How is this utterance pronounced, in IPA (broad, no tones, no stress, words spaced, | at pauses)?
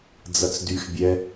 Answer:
d͡zɐt͡sdyx bʲɛ